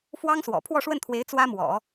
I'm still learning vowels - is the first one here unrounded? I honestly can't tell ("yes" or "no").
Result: yes